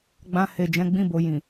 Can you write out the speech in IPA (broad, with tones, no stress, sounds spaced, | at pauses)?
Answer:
ɡ͡b ã˧ h e˨ d͡ʒ ɛ̃˨˦ ɡ͡b ĩ˦˨ b o˨ j ĩ˨